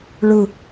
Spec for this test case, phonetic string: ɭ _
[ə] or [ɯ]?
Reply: ɯ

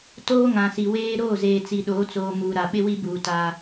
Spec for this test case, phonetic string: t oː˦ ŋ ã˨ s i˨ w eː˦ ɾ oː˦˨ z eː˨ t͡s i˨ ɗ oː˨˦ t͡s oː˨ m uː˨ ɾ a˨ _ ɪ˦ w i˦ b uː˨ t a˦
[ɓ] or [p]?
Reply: ɓ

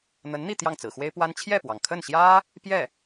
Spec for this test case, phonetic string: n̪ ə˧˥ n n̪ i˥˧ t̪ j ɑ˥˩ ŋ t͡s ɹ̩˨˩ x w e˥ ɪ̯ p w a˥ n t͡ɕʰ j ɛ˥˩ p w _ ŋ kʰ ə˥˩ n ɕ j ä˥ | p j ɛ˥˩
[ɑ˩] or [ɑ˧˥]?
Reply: ɑ˩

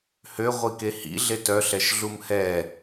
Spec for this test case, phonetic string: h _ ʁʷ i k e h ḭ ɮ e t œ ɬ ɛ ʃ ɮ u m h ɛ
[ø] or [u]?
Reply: ø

